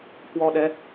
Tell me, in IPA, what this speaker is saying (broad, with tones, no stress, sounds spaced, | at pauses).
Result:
k w ɔ˧ ɗ ɛ˨˦